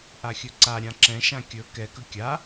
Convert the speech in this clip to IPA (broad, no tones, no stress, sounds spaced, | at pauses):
ʔ a xʲ ɵ ǀ a ɾʲ ã ǁ ɛ̃ ʃ ã kʲ ɵ k ɛ k ɵ kʲ a